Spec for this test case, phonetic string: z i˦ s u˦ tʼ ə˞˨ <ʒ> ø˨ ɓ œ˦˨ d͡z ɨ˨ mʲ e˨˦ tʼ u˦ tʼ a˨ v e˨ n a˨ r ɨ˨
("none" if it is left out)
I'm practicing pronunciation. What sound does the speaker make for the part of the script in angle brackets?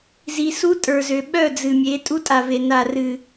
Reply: z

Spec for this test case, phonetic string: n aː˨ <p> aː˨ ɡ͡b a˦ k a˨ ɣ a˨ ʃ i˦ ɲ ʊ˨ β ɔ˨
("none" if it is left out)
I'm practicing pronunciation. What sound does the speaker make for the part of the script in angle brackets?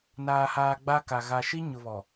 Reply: h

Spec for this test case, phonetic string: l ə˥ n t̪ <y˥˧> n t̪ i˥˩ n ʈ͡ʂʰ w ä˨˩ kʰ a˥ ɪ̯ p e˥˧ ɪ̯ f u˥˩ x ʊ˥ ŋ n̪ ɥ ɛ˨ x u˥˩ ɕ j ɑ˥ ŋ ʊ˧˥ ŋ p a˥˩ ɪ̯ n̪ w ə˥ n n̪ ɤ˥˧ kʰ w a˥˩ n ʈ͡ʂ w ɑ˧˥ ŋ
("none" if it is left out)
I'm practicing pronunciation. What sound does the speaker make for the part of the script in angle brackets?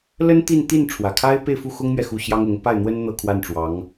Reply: i˥˧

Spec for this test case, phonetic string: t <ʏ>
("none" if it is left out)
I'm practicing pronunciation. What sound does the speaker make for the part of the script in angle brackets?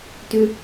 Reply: ʏ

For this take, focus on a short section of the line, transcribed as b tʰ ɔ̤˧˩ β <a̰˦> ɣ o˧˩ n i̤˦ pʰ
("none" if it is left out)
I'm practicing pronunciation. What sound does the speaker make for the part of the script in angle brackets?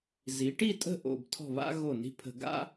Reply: a̰˦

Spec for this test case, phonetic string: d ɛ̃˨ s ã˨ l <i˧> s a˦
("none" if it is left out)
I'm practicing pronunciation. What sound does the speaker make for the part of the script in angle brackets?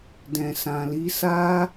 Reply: i˧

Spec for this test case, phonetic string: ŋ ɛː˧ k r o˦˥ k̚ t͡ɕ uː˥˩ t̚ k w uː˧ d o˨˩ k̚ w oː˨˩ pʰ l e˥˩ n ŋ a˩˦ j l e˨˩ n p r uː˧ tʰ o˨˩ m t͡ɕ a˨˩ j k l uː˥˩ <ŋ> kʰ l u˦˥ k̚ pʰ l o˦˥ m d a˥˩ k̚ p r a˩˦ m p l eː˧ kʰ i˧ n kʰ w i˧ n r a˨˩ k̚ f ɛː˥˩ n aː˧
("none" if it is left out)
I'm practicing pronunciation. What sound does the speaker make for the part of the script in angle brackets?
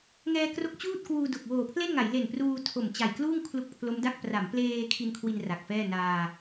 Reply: ŋ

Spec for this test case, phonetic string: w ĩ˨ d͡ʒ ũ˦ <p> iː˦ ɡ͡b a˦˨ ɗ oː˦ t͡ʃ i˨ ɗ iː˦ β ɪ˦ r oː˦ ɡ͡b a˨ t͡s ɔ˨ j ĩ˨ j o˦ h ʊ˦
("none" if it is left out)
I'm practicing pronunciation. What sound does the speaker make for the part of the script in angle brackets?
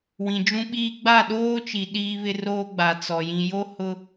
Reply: ɓ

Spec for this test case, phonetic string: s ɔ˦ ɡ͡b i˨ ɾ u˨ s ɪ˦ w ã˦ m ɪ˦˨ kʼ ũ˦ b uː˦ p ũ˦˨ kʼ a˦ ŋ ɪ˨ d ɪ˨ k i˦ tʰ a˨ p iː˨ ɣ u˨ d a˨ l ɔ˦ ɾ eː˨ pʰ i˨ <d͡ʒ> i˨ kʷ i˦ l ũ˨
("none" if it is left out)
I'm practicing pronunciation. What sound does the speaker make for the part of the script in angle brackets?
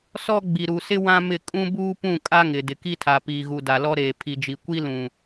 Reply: d͡ʒ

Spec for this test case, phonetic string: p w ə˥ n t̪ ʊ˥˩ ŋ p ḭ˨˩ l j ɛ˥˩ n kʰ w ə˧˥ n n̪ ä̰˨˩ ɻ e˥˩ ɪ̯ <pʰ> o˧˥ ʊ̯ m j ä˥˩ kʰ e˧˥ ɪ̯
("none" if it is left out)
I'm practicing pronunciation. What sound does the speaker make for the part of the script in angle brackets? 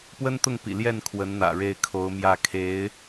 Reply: kʰ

